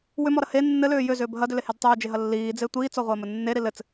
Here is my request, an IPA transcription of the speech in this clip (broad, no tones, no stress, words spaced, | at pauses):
wʏmɔɾɐ he nːɘlʏː jʏzʏːb ɦɐdʏlehed tˤʏːd͡ʒeɦɐ lːiːd͡ze tʷiːt͡sɔʁʷɐːmɘ nːeɾi lɘt͡s